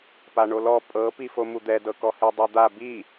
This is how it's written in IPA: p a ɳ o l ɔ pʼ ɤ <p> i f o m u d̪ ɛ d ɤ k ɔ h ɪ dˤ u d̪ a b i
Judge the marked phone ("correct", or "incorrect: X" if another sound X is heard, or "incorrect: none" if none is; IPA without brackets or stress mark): correct